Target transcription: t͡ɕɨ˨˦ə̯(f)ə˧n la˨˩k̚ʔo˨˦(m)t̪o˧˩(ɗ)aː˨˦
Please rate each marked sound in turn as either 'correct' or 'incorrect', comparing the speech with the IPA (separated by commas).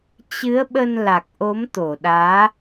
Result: incorrect, correct, correct